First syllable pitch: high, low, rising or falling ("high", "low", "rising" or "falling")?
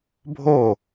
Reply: falling